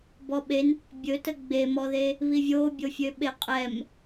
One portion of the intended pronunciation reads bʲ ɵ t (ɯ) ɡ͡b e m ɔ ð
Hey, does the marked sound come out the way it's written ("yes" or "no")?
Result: no